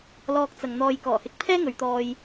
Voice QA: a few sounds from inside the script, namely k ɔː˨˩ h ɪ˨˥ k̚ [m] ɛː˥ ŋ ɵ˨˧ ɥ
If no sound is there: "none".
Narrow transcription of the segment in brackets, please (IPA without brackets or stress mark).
pʰ